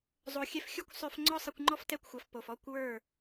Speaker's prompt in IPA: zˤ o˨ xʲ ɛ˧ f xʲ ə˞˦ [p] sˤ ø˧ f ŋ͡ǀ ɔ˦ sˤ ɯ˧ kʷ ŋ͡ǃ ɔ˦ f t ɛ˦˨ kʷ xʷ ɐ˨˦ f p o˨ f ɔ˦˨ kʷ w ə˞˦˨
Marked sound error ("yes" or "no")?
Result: yes